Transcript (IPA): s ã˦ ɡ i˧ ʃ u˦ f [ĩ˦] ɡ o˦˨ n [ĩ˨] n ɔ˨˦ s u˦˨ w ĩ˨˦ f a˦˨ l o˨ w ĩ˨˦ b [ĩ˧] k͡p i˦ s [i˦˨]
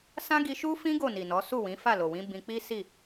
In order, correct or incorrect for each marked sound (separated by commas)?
correct, incorrect, correct, correct